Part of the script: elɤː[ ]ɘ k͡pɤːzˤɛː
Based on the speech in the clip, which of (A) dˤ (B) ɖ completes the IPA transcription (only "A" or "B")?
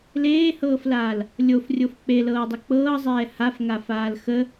A